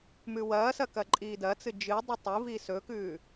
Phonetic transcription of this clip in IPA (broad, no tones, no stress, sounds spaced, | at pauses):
m ʉ w ɐː s ɐ k ɐ ǃʼ iː d ɐ t͡s ɨ d͡ʒ ɨ dˤ u tˤ ɨ v i s ɵ k ʉː